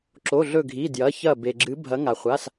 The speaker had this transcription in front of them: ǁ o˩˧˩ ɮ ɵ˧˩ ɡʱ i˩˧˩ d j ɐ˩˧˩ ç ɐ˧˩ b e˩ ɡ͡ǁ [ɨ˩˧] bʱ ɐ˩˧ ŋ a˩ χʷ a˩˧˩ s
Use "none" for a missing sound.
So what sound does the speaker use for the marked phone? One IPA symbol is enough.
ɨ˩˧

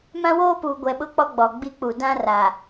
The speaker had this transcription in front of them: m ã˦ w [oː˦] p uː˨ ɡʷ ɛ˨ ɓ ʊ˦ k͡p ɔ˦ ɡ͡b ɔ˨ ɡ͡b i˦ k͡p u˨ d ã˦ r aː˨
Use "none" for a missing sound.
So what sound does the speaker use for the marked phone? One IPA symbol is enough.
oː˦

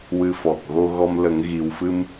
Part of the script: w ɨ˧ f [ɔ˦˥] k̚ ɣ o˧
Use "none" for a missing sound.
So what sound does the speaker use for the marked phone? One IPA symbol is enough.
ɔ˨˩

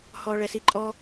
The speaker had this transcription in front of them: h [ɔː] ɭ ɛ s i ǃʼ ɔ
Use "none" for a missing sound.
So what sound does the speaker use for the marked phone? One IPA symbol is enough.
ɔː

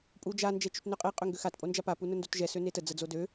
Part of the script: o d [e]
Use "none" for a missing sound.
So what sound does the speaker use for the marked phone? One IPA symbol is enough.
ø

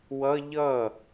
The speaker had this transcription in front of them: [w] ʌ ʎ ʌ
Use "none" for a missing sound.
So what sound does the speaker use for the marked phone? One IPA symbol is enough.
w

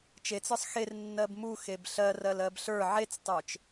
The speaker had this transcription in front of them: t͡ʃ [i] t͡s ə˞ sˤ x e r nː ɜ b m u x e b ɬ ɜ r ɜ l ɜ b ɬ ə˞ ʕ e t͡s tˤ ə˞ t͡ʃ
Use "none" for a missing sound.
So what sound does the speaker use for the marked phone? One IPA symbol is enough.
e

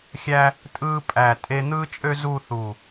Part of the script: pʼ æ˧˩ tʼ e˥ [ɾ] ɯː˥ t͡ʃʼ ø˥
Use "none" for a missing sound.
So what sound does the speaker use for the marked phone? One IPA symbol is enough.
n̪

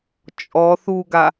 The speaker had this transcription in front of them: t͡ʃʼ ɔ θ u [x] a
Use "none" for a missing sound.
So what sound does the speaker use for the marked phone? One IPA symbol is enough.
ɡ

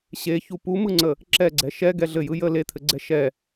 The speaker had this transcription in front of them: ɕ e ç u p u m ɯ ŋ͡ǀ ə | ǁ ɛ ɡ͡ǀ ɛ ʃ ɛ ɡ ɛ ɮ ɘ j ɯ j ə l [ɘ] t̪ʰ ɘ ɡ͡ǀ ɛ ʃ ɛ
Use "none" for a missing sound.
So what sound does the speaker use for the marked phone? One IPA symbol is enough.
e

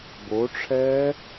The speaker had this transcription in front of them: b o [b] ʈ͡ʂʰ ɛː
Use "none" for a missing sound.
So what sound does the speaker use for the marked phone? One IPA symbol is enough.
none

